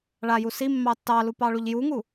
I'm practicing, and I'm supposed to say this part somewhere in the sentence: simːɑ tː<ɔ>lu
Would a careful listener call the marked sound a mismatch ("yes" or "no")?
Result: yes